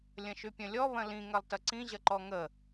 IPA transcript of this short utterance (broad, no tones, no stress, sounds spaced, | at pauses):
lʲ ɐ̃ ʃ y pʲ ɐ̃ lʲ ɔ β ɐ̃ l ĩ ŋ ɐ lˠ t ɐ ǀ ĩ ʑ ɐ ǃ ɔ ŋ ə